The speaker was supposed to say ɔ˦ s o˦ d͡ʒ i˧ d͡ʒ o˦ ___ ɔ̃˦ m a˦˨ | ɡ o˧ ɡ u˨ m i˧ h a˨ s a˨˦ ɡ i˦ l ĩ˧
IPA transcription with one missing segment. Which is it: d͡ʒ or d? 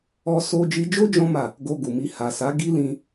d͡ʒ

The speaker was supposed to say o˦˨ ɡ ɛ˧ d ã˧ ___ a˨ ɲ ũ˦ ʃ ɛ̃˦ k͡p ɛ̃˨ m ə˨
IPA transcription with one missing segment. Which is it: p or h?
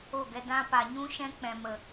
p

